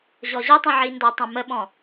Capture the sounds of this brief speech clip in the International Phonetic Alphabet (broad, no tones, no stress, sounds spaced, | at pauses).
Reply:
ʑ ɔ ʑ ə tˤ ĩ ʕ i n d ɒ tˤ ũ m ə ɓ ɔ̃